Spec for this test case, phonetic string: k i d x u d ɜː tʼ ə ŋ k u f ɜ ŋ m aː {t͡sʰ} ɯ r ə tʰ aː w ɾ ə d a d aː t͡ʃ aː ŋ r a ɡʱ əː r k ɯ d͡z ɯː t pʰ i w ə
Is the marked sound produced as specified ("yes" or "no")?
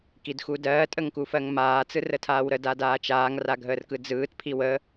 no